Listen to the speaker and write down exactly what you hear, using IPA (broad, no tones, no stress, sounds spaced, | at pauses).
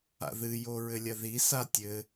a̰ ð ɨ j o ɹ ɘ lʲ ɐ ð i s a tʲ ɘ